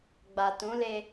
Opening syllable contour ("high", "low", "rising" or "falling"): low